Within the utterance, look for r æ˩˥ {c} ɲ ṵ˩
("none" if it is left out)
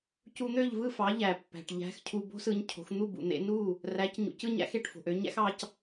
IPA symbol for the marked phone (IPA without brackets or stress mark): c